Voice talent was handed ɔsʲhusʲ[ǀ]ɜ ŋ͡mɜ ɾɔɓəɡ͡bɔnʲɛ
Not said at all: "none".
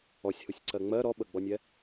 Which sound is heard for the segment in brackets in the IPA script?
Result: ǀ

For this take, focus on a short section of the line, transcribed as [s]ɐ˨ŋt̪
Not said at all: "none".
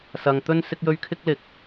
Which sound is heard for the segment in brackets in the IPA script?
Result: s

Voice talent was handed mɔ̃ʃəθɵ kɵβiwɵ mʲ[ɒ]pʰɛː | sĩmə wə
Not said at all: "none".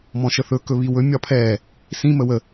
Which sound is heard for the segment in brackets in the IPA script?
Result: ɒ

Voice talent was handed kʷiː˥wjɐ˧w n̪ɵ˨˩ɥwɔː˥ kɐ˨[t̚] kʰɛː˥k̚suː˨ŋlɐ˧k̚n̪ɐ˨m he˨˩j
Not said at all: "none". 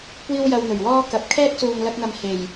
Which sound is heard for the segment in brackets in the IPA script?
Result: p̚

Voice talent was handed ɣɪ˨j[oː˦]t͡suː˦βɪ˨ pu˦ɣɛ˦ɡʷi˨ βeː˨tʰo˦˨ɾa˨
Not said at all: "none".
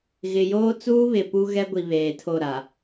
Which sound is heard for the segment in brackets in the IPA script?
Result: oː˦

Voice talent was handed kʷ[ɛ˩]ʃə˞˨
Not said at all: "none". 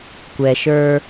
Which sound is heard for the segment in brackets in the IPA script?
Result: ɛ˩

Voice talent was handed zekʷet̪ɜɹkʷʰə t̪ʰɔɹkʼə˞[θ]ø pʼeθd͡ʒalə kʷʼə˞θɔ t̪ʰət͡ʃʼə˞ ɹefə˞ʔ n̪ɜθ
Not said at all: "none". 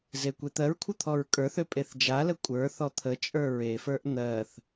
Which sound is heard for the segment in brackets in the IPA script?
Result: θ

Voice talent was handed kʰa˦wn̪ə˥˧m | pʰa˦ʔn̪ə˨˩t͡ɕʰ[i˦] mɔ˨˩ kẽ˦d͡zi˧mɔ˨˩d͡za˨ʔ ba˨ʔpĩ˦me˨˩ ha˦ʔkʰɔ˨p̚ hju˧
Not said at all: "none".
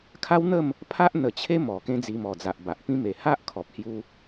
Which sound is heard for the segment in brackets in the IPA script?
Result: e˦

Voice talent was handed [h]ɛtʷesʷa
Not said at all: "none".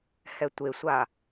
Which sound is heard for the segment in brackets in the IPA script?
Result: h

